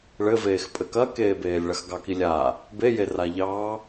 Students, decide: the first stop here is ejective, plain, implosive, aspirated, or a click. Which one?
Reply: ejective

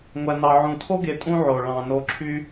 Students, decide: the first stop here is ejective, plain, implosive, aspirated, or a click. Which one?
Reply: aspirated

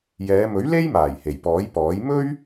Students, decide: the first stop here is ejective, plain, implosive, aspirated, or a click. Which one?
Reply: plain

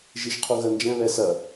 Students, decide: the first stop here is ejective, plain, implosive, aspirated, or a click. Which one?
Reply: aspirated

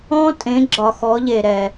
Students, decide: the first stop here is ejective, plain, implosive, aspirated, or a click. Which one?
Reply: ejective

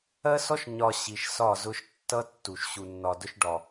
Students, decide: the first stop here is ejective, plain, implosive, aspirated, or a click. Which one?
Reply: plain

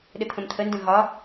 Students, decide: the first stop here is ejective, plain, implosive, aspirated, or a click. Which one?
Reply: implosive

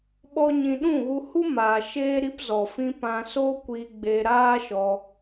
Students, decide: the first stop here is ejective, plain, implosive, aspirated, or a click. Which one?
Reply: implosive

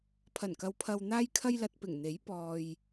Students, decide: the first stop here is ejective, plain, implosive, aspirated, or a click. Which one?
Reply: aspirated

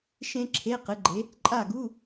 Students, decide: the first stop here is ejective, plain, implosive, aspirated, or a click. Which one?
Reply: click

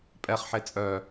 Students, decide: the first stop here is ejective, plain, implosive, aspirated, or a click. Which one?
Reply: ejective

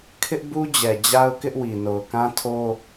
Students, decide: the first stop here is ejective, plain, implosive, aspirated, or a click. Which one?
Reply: aspirated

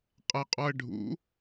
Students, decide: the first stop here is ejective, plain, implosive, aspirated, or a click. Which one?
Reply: ejective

